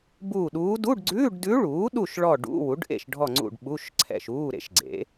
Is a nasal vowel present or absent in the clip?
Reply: absent